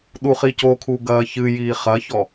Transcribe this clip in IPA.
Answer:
ɗ u χ i c o kʰ u ɡ ɐː ç ɨ j iː χ ɐ ç ɔ

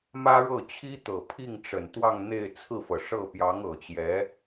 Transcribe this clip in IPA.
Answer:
m ä˥ ɻ ɤ˥˩ t͡ɕʰ i˥ t̪ ɤ˨˩ pʰ i˥˩ ŋ ʈ͡ʂ ə˨˩ n t̪ w ɑ˥˧ ŋ n̪ e˥˧ ɪ̯ t͡sʰ ɹ̩˥˩ f ɤ˩ ʂ ɤ˥˩ p j ɑ˧˥ ŋ ɤ˨˩ t͡ɕ j ɛ˧˥

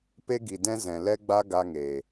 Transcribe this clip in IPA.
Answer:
p e˦ ɡ i˨ d ɛ̃˦ z ɛ̃˨ l ɛ˦ ɡ͡b a˦ ɡ a˧ ŋ e˨

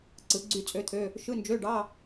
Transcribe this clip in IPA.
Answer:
ǀ ɯ˩˧ ɡ͡ǀ y˦˨ t͡sʼ ø˧˥ t̪ʰ ø˧˥˧ | ʃ ɯ˧˥˧ n d͡ʒ ø˧˥˧ ɖ ɑ˧˥˧

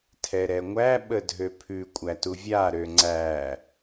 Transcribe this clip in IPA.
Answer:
tʰ ɛ ɾ ɛ ŋʷ æ ɓ ə dʱ ø pʰ ʉ kʷʼ æ t u vʲ a ɾ ø ŋ͡ǀ æ

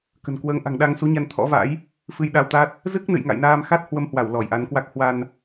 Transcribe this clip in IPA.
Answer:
k ə̤˨˩ n k w əː˨˦ ŋ ʔ a̤˨˩ ŋ ɗ a˧ ŋ s u˨˦ ɲ a˧ n t̪ʰ ɔ̰˧˥ v a̰˧˥ j | f ɨ˧ j ɗ a˧ w t̪ a˦˥ t̚ | z ɨ˦˥ k̚ n ɨ̰˧˨ j ŋ a̰˧˨ j n aː˧ m x a˦˥ t̚ h w ə˧ m h w a˧˩ w l ɔ˧˩ j ʔ a˨˦ n k w a˦˥ k̚ h w a˧ n

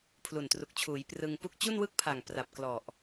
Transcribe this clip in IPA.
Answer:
pʰ l u˨˩ n t r u˨˩ k̚ t͡ɕʰ uː˩˦ j p r ɯ˧ ŋ p u˥˩ k̚ t͡ɕ u˥˩ n w ɯ˥˩ k̚ pʰ a˨˩ ŋ p r a˨˩ p̚ k l ɔ˨˩ ʔ

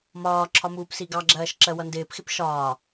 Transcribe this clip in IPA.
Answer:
m ɒː ǁʰ ɒ m uː p s i ɡ ɑ ɡ͡ǁ ɜː ʃ ǁ ɜ w ʌ n d ɪː p x ɪ p ʃ ɒː

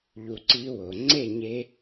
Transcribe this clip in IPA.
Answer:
ʎ u˧ ǀ i˦ w o˨ ŋ͡ǀ e˦˨ ɲ e˧

